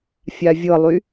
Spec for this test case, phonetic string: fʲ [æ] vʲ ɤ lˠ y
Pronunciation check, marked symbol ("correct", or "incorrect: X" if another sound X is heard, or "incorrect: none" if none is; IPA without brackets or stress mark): incorrect: a